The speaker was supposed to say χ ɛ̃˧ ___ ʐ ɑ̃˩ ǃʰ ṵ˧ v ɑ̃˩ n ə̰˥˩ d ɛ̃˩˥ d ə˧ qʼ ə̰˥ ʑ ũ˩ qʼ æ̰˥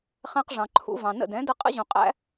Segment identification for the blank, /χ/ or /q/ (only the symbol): q